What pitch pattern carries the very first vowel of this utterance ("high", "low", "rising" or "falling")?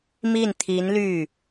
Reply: falling